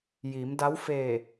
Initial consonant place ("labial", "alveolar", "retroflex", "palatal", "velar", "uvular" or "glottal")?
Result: palatal